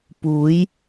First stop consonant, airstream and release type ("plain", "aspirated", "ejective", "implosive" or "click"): plain